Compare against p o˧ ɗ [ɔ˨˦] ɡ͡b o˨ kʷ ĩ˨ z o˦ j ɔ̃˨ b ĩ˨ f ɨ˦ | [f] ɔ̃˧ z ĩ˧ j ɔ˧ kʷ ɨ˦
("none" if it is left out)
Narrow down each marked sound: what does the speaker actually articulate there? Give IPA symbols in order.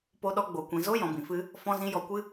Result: ɔ˧, f

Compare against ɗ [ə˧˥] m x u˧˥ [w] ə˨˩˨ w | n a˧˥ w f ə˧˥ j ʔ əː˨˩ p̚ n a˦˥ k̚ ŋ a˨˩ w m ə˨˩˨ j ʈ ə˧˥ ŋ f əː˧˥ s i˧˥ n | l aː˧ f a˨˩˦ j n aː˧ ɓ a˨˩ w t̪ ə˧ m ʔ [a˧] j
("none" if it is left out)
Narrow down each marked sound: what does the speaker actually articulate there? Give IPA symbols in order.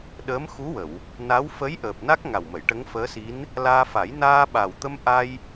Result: əː˧˥, w, a˧

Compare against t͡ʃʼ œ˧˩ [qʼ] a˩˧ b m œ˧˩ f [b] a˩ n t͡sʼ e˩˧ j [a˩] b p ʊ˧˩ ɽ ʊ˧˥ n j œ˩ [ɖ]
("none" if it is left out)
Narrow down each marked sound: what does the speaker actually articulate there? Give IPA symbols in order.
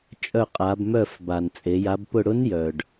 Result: qʼ, b, a˩˧, ɖ

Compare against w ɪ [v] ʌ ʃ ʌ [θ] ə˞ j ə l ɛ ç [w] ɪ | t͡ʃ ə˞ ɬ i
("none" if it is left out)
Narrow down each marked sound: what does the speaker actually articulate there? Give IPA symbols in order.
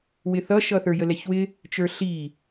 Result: θ, θ, w

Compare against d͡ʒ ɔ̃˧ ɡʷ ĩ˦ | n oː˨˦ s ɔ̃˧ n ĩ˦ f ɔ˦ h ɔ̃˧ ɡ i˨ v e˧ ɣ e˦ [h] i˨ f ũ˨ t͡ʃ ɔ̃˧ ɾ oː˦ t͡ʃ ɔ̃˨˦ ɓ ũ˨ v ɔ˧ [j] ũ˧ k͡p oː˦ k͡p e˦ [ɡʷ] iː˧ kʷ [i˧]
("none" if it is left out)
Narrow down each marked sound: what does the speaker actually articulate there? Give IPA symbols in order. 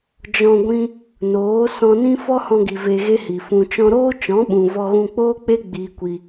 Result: h, ɣ, ɡ͡b, i˧

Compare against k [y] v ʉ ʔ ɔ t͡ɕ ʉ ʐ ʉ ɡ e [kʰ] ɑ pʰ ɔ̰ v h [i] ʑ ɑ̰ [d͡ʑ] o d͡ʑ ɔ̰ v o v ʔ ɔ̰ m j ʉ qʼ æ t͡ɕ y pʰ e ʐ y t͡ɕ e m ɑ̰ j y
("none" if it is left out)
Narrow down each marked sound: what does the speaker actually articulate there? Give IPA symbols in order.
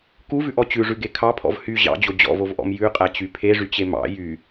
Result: u, kʰ, y, d͡ʑ

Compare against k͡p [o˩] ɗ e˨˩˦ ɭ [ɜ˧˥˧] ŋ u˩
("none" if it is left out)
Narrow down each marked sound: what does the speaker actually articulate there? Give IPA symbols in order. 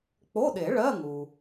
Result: o˧˥˧, ɜ˧˥˧

